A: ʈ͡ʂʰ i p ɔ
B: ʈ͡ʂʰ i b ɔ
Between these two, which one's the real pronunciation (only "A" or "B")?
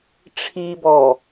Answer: B